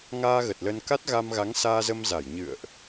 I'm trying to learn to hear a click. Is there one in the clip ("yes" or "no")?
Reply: no